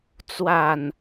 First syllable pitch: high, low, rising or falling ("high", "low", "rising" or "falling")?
falling